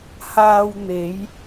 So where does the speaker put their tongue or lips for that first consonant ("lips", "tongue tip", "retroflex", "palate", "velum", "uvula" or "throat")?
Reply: throat